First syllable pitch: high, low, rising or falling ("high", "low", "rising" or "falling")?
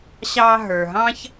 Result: high